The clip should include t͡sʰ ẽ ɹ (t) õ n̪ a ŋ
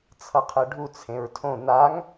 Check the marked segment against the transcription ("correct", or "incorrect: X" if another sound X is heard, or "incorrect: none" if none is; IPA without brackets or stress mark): incorrect: tʰ